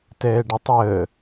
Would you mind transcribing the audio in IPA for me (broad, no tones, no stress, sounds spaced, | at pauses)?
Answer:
t ɛː ɖ ə tˤ əː